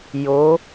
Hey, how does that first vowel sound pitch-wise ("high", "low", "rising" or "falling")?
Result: rising